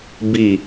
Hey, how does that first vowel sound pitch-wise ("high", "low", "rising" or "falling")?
falling